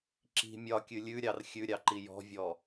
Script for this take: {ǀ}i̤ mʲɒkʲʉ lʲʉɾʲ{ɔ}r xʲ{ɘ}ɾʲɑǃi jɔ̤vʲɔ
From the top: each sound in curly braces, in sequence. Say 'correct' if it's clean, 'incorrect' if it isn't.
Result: incorrect, incorrect, incorrect

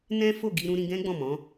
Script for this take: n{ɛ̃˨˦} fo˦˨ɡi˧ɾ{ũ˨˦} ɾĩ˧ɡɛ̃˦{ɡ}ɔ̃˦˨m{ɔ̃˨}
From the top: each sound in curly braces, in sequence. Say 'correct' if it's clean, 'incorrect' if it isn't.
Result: incorrect, incorrect, incorrect, incorrect

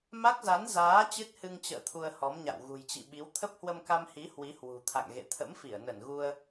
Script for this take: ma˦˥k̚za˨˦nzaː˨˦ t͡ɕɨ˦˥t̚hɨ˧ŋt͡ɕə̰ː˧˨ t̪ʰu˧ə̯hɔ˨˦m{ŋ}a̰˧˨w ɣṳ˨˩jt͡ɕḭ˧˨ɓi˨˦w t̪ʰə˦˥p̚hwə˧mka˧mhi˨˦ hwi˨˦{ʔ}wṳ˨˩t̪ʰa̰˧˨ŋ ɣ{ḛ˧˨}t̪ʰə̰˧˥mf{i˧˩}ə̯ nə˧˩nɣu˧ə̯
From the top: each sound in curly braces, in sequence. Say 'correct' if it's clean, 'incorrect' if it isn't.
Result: incorrect, incorrect, correct, correct

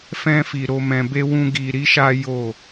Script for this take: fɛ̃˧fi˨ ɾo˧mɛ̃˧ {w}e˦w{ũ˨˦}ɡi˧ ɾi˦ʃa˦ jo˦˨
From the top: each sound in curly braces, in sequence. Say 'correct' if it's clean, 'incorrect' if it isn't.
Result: incorrect, incorrect

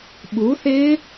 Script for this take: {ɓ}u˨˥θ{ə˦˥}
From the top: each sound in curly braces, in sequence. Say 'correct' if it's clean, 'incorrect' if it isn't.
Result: correct, incorrect

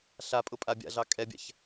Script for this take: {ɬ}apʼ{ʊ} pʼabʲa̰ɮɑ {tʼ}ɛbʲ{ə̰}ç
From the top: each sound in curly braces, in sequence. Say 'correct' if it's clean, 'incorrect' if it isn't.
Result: correct, correct, incorrect, incorrect

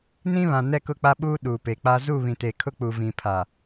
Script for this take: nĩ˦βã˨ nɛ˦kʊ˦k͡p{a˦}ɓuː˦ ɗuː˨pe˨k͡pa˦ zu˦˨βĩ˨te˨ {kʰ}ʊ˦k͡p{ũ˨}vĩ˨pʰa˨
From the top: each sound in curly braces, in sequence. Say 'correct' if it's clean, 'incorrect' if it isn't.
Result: correct, correct, incorrect

